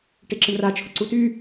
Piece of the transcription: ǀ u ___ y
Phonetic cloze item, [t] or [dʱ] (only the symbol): t